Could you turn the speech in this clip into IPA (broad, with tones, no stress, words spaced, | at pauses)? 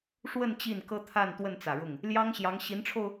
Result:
ʂwə˥˧n t͡ɕi˥˩nkɤ˥t̪ʰa˥˧n t̪wə˥˩nt͡sä˨˩ ɻʊ˥˩ŋ | ljɑ˥ŋɕjɑ˧˥ŋ ɕi˧˥nʈ͡ʂʰo˧ʊ̯